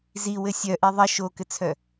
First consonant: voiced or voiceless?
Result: voiced